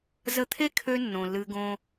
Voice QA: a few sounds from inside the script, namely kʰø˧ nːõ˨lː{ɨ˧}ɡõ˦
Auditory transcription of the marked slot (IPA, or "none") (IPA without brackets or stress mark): ɨ˧